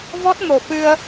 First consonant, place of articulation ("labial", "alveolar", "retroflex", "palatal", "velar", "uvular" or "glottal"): labial